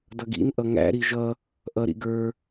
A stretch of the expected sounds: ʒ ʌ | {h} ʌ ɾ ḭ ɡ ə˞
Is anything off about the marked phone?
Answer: yes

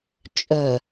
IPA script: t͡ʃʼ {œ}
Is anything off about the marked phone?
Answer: no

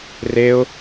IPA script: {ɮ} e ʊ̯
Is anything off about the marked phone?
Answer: yes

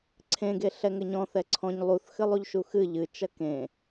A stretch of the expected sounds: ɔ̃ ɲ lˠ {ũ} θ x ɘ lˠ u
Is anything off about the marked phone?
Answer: yes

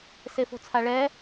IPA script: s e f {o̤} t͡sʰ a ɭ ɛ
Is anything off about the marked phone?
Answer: no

